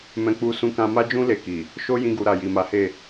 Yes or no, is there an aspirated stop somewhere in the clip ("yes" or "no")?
no